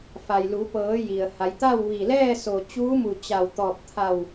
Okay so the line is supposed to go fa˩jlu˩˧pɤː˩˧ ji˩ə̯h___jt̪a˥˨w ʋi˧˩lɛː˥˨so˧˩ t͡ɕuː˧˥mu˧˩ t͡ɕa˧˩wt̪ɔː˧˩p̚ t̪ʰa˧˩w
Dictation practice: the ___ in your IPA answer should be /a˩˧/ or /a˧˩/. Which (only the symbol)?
a˩˧